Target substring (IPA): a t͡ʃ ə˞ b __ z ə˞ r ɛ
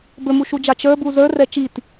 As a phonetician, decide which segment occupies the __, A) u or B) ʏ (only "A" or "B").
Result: A